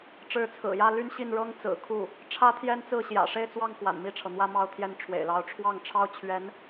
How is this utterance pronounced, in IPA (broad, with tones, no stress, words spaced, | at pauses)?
ʈ͡ʂɻ̩˧˥t͡sʰɹ̩˨˩jä˥˧ ly˥˧nɕi˥˩nɻɤ˥ŋ t͡sɹ̩˨˩kʰu˥˩ | ʈ͡ʂʰä˥t̪ʰjɛ˥nt͡sɹ̩˥˩ ɕjä̰˨˩ʂe˥˧ɪ̯ t͡swɑ˥˩ŋ kwa̰˨˩nmi˥˩ʈ͡ʂʰɤ˩n̪wä˥˧ mɑ˥˧ʊ̯t̪ʰjɛ˥˩n ʈ͡ʂʰwḛ˨˩ɪ̯lɑ˧˥ʊ̯ʈ͡ʂʰwɑ˥˩ŋʈ͡ʂʰɑ˥ʊ̯ t͡ɕʰɥɛ˧˥n